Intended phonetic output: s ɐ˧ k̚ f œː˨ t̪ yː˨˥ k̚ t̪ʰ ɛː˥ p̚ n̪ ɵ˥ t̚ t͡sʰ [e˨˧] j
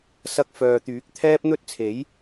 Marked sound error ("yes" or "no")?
yes